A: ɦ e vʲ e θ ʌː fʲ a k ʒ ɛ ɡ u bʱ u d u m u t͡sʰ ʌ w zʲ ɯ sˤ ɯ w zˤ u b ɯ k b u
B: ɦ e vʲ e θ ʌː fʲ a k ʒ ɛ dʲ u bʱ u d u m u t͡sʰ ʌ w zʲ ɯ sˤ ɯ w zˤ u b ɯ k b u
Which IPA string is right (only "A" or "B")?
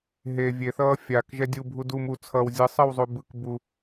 B